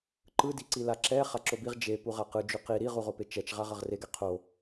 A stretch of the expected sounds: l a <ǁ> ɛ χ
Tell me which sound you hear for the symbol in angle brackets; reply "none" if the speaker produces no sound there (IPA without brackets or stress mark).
ǁ